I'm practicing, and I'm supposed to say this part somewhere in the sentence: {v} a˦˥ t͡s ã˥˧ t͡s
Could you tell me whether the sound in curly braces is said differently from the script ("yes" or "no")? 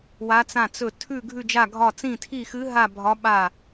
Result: yes